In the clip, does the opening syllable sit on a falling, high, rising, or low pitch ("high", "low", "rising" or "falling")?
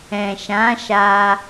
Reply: low